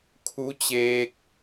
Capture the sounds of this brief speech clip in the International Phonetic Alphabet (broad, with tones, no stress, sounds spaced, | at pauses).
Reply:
kʰ u˧˥ t͡ɕ eː˧ k̚